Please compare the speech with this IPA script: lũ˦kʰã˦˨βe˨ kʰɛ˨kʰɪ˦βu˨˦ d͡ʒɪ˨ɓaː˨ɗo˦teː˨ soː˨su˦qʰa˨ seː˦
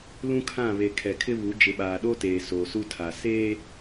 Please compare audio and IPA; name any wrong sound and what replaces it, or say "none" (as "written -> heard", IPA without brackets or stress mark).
qʰ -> tʰ